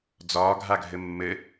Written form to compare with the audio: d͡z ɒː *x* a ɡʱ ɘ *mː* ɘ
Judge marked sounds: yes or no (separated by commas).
no, yes